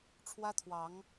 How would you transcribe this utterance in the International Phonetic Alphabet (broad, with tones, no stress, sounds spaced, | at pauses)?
ʈ͡ʂʰ w ä˦ t̪ʰ w ɑ˨˦ ŋ